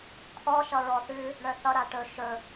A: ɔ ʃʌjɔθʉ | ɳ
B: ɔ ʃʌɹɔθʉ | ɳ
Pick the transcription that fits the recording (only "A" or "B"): B